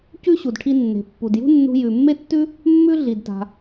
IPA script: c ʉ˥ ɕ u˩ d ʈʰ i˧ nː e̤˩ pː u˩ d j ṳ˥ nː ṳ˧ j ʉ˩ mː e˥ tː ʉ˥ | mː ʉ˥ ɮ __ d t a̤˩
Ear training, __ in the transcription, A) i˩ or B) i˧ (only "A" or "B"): A